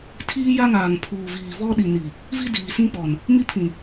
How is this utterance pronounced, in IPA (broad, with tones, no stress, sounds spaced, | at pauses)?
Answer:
tʰ iː˦ j a˦ ŋ aː˨ ŋ pʰ uː˨ v iː˨ v ɔ˦ ɗ i˨ n i˨ | v i˦ d iː˨ s ĩ˦ k͡p ɔ˨ n | m i˦ pʰ ĩ˨